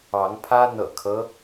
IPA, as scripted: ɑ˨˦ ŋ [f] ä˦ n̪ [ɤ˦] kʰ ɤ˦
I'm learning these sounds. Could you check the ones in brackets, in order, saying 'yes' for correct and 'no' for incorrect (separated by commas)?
no, no